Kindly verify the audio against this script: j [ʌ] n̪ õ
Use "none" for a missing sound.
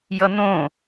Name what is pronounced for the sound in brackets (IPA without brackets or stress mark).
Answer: ʌ